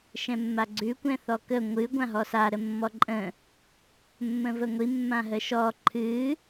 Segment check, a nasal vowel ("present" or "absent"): present